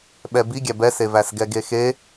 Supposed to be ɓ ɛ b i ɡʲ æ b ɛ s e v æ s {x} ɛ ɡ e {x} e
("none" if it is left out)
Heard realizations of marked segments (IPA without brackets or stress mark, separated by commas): ɡ, x